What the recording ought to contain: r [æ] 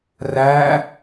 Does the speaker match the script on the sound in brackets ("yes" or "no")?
yes